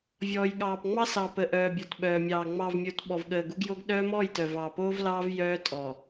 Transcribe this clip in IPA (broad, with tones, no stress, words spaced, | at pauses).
vʲɔː˨jɠɑː˨pŋ͡mɑ˦ sɑ˨pə˨ʔœː˨ bʲɔ˨tɓœː˨mʲɑː˨ ŋ͡mɑ˨vmʲo˨t ɓɔ˨vɠəː˨ɡu˦ɡjo˦ɡ ɗœː˦mɔː˦˨jtœ˨ vɑː˨poː˦vlɑː˦v jœː˦tʼɔ˨